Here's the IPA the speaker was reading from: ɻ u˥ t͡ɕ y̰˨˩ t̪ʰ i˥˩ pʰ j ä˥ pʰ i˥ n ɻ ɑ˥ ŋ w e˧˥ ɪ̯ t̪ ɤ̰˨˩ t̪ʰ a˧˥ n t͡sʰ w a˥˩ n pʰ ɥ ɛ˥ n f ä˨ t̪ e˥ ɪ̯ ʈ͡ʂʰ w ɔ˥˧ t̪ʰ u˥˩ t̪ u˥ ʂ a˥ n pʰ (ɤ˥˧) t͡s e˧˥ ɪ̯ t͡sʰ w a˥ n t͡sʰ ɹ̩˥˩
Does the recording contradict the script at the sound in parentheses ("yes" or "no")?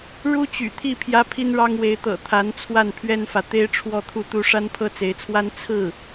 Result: yes